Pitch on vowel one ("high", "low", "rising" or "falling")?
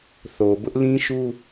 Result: low